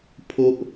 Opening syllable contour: high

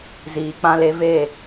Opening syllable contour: low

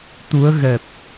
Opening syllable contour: rising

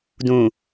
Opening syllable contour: low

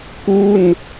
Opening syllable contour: falling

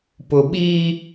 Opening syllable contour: low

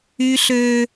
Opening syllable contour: high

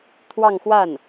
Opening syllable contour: falling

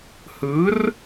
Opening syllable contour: rising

